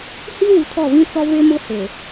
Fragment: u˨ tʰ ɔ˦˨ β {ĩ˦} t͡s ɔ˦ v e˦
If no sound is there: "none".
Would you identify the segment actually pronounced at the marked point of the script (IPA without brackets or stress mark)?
ĩ˦